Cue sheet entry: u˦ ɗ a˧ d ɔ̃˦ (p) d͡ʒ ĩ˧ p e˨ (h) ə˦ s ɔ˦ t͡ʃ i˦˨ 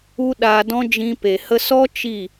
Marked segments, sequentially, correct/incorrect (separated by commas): incorrect, correct